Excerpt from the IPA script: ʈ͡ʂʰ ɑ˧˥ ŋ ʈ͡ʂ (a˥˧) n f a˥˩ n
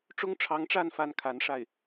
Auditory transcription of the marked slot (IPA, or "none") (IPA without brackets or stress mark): a˥˧